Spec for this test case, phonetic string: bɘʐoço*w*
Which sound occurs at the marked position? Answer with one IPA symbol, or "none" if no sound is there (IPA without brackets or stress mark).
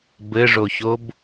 b